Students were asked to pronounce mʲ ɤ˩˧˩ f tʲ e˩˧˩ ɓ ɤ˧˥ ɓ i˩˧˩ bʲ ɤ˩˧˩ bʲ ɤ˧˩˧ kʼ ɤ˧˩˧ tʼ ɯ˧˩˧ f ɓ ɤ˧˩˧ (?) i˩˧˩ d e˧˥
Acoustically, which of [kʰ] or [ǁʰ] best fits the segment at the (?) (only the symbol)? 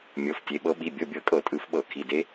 kʰ